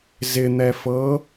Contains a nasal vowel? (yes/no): no